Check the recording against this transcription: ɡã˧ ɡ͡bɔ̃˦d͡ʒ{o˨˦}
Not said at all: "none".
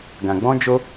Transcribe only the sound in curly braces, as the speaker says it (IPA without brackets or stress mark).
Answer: o˦